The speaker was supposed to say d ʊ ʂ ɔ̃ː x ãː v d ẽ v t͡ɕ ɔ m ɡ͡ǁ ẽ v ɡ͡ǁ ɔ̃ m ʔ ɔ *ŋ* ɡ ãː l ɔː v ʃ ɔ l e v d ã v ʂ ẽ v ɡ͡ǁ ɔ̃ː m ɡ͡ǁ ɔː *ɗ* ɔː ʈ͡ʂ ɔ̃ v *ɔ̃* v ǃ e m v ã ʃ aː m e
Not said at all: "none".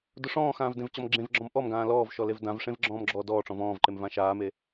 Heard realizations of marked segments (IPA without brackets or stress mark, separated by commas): m, d, ɔ̃ː